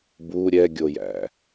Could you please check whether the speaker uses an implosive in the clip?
no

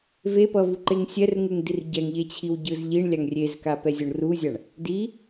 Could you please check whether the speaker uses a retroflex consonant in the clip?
yes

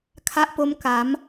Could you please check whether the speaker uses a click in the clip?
no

